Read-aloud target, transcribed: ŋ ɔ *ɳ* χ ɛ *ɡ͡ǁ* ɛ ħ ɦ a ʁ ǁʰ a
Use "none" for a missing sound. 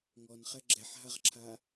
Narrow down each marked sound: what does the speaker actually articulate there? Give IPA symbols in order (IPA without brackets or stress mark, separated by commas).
n, ɡ͡ǁ